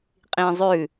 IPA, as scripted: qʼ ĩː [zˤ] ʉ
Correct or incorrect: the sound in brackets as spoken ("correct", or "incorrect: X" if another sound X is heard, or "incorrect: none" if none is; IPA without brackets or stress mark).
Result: correct